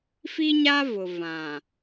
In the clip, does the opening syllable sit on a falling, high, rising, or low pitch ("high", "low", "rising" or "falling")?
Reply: high